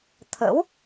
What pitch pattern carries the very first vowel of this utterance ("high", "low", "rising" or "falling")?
rising